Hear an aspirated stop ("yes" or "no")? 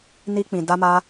no